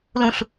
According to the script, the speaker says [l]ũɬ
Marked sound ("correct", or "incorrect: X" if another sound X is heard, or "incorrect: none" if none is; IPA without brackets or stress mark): correct